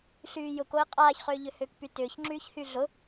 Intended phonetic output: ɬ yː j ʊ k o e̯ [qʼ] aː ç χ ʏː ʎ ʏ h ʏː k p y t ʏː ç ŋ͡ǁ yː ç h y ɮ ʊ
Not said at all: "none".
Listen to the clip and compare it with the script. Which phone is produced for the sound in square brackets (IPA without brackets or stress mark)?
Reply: qʼ